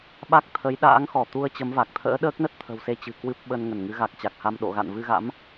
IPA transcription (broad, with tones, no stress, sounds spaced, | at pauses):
ɓ a˦˥ k̚ t̪ʰ ə˨˦ j ɗ a̰ː˧˥ ŋ x ɔ˧˩ t̪ u˧ ə̯ t͡ɕ ə˨˦ m v a˨˩ k̚ t̪ʰ ə̰ː˧˥ ɗ əː˦˥ k̚ n ə˦˥ t̚ t̪ʰ ə̤˨˩ w s e˧ t͡ɕ ɨ̤˨˩ k w ɨ˦˥ p̚ ɓ ə˧ n ŋ ə˧˩ n ŋ ɨ˨˦ ɣ a˨˩ k̚ t͡ɕ a˨˩ k̚ h a˧ m ɗ o̰˧˨ ɣ a̰˧˨ n v ɨ˧ ɣ a̰˧˥ m